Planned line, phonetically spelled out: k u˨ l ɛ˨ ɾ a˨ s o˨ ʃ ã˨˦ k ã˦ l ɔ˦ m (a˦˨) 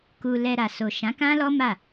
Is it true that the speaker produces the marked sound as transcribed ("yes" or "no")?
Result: yes